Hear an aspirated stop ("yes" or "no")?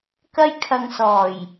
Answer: yes